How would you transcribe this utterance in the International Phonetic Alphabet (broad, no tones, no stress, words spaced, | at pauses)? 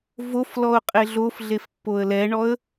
voflɔʊ̯ qʼeɮofɮef pːoə̯lɛɳɔə̯